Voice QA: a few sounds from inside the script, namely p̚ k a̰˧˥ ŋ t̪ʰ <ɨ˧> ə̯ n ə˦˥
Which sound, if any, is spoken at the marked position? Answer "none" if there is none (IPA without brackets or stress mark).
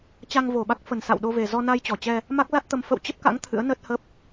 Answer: ɨ̰˧˥